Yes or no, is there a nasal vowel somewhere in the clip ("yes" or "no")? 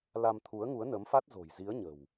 no